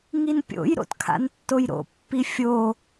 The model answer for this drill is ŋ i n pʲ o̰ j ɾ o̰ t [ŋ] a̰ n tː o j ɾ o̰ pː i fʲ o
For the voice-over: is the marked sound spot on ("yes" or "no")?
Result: no